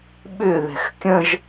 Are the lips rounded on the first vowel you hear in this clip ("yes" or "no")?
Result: yes